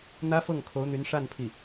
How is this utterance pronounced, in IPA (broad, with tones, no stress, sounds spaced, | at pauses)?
n̪ ä˥ f ɤ˥˩ ŋ kʰ o˧˥ ʊ̯ n̪ y˧˥ n ʂ a˥˧ n pʰ i˥˩